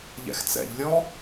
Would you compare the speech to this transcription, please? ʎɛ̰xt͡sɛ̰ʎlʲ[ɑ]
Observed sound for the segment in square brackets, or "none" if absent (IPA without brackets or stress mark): ɔ